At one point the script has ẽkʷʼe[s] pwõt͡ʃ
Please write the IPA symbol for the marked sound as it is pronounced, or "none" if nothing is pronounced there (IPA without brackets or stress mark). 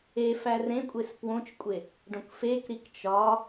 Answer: s